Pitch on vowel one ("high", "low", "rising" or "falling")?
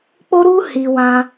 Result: high